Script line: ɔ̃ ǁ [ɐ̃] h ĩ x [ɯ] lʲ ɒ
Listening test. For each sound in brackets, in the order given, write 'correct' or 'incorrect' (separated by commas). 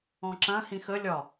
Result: correct, incorrect